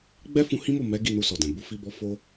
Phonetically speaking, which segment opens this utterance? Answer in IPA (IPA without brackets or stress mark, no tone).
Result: ɡ͡b